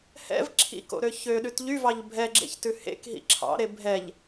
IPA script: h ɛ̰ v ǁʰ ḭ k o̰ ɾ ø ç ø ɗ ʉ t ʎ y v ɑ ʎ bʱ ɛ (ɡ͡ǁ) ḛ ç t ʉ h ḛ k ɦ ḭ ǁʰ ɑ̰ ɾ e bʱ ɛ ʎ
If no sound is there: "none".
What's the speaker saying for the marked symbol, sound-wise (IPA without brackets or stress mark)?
ɡ͡ǁ